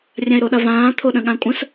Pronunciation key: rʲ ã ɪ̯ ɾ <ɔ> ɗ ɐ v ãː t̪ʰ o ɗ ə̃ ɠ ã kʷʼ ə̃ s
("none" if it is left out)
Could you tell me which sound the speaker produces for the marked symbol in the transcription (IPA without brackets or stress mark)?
o